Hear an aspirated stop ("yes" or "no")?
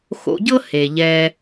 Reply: no